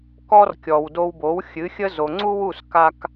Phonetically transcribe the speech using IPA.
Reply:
k ɔ˥ r kʲ ɔ˩ w d o˧ w b o˩˥ w xʲ ɨ˩˥ xʲ ə˥ z o˩ ŋ͡ǀ u˥ w u˥˩ s k a˧ k

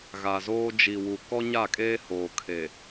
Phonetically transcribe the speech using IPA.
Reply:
ɣ a˨ z oː˦ d͡ʒ i˨ w u˨ k ɔ˦ ɲ a˦˨ kʼ eː˦ h oː˨ kʰ e˨

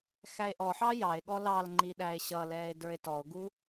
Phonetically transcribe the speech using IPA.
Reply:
x æ e̯ ʔ ɔ ħ ɑ j ɑ e̯ ɠ ɔ l ɑ l ŋ͡ǃ i ɗ æ e̯ ɕ ʌ l ɛː e̯ d ə˞ e̯ t ɔ o̯ ɡ u

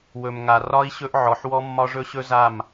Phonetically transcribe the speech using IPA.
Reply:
w ɵ˨ m ŋ a˨ r ɒ˦ i̯ ɕ ɵ˦ ʔ ʕ ɔ˨ ħ w ɔ˦ mː ɒ˦ ʐ ɵ˦ ɕ ɵ˦ z a˦˨ m

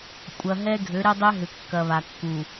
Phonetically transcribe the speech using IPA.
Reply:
kʷʼ ɐ˨ ɦ ɛ˦ ɡʱ ø˨˦ ɾ ɛ˦ dˤ ɛ˦ ɦ ʏ˨ kː ɐ˨ β a˨ kː u˨

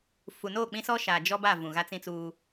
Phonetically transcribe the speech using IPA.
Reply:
f u˨ n o˦˨ k͡p ĩ˦ s ɔ˦ ʃ aː˨ d͡ʒ ɔ˦ b a˦˨ v ũ˨ ɣ a˦ t͡s ĩ˦ t͡s uː˦

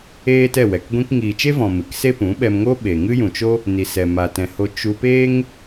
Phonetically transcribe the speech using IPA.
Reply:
eː˦ t ɛ˦˨ w ɛ˨ k ɡʷ ĩ˧ k ŋ iː˨ t͡ʃ e˦ v ɔ̃˨ m ɨ˨ k s e˦ p ũ˨˦ ɓ ɛ˧ m ŋ o˦ ɓ e˨ ŋ ɨ˦ j ũ˨ t͡ʃ o˦ | n i˨ s ɛ˨ m a˨ t ɛ̃˨ h o˧ t͡ʃ u˧ p eː˦ ŋ

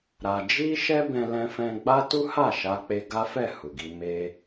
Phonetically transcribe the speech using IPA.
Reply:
ɾ a˧ d͡ʒ i˦ ʃ ɛ˦ b ɛ̃˧ l ɛ̃˧ f ɛ̃˧ ɡ͡b a˦ t u˦ h a˦˨ ʃ a˧ k͡p e˧ ɡ a˦ f ɛ˦˨ h u˨ ɡ i˧ m e˧

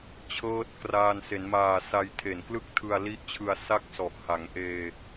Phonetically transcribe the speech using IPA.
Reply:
t͡ɕʰ ɤː˦˥ t̚ k r aː˧ n s e˩˦ n m aː˨˩ s a˧ j tʰ e˨˩ n k l ɯ˥˩ k̚ tʰ ɯ˧ a̯ l i˦˥ ʔ t͡ɕʰ ɯ˧ a̯ s a˥˩ k̚ s ɔ˨˩ ʔ h a˩˦ ŋ ʔ eː˧

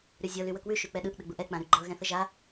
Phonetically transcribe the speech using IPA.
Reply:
ɾ y zʲ ɤ l y w ə k w ʉ ʃ y k͡p ɛ ɗ ɯ ʔ ɗ ə ɡ͡b u ʔ ɛ k͡p ã ɾ y ɡ͡ǃ ɤ ɣ ɛ̃ θ ə ʒ a

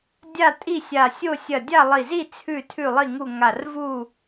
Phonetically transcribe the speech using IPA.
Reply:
dʲ a˥˨ tʼ i˥˨ sʲ a˧˩ sʲ o˥˨ sʲ ɐ˧˩ dʲ a˥˨ lˠ i˧˩ z i˥˨ t͡sʰ ʉ˥˨ tʰ ʉ˥˨ lˠ i˥˨ ŋ u˥˨ ŋ a˧˩ r v u˥˨

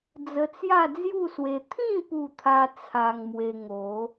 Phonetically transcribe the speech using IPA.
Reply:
d͡z ə˧ t͡s j a˥˧ d͡z j u˥˧ s w e˧ t̪ʰ ĩ˥˧ p u˥˧ t̪ʰ a˦ t͡sʰ a˧ ŋ m w e˧ ŋ o˨˦

